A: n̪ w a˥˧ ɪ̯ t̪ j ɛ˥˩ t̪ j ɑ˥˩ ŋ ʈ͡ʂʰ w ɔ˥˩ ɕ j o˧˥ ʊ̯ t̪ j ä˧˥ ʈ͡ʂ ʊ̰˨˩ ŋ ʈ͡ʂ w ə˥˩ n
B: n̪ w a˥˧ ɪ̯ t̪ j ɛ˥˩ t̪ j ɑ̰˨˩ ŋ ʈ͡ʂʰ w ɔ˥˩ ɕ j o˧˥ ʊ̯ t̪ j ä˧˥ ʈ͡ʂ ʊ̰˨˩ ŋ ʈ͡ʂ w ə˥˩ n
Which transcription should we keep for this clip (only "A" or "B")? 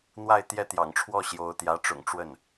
B